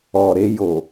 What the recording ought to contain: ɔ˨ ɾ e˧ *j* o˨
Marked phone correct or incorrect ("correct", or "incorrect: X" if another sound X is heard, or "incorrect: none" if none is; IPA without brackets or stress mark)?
correct